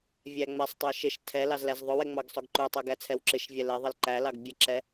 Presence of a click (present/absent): present